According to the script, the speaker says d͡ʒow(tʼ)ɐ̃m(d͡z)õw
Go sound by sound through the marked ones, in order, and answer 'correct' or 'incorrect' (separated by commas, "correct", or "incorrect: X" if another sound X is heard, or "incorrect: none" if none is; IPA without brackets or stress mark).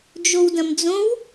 incorrect: d, correct